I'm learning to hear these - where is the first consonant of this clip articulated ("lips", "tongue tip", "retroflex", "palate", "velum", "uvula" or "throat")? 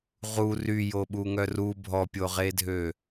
uvula